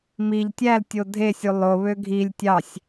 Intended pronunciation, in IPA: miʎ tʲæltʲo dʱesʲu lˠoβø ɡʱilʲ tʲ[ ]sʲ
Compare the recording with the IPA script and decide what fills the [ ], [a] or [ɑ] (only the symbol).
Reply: ɑ